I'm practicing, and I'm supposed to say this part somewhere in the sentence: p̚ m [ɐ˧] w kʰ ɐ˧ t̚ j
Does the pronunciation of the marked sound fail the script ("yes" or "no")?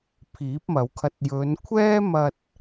yes